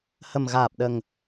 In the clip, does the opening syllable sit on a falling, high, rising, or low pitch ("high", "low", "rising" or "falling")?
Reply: low